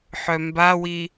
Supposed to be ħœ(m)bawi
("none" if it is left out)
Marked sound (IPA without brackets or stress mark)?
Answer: m